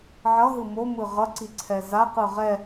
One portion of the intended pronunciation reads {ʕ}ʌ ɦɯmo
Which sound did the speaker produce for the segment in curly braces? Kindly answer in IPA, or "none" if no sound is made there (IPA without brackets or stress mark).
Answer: ʕ